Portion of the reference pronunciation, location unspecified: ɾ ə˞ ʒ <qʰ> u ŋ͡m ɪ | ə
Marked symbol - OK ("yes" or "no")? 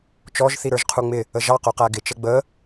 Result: yes